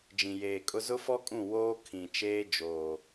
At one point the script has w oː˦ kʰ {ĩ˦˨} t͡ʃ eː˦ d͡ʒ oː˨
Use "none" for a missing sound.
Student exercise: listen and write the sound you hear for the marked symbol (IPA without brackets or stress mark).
ĩ˨